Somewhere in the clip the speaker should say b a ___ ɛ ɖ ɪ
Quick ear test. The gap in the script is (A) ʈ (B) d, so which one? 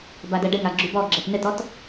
B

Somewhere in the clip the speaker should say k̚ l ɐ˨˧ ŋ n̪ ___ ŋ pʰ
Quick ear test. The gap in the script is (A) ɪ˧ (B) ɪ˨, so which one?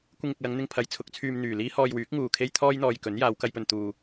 A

